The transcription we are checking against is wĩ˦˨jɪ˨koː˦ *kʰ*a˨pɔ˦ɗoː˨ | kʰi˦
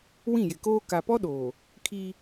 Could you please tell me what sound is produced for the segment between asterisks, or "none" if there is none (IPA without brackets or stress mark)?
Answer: k